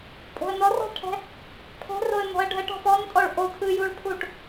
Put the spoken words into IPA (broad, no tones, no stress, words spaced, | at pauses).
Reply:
pʼo̤ə̯nɔrɔ̤ɭʈʰɛ̤ | pʰɛ̤roə̯ nɔ̤ə̯ɖʱəʈ ɔ̤fɔntʼɔɭ ʔo tʰɯjuɭpʰuʈ